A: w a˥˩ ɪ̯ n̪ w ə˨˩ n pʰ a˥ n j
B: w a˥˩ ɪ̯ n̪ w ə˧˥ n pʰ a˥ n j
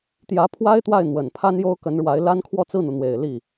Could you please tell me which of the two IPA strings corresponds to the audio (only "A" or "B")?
A